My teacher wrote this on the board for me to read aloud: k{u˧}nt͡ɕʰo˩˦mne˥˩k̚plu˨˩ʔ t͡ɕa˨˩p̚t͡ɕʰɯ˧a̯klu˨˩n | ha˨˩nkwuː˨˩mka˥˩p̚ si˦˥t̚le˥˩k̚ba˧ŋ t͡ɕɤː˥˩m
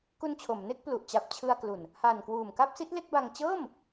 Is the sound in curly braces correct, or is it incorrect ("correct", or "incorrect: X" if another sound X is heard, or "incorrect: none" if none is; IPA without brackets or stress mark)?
correct